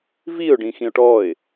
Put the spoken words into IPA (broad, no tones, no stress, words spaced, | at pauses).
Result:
viʊ̯ ɖĩxĩʊ̯ʈɔɪ̯